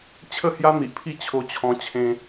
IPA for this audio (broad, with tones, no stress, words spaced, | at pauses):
t͡ɕʰə˥˧hja˦ n̪i˨ʔpʰi˥˧ t͡ɕʰo˧t͡ɕʰɔ̃˧ t͡ɕʰẽ˧